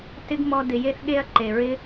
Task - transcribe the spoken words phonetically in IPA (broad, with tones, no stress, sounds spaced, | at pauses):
t ɪ˦ ɡ m ɔ˧ d ɪ˨ j e˧ θ ɠ e˧ ɐ̯ ǃ e˨ ɹ ɪ˦